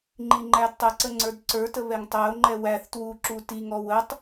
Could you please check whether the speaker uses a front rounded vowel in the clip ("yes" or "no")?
no